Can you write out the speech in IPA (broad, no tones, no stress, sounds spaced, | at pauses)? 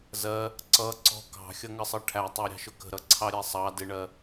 z ɜ | ǀ ʌ ǀ ɔ̤ k ɑ̤ xʲ ʌ ŋ ə sˤ ʌ ʈʰ æ tˤ ɜ ɾʲ ɑ̤ ʃ ʊ k ə̤ ɾ ʌ ǀʰ ɑ ɾʲ ɛ sˤ ɑ d ɪ ɳ ɜ